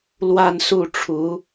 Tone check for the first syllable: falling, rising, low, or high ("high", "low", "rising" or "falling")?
falling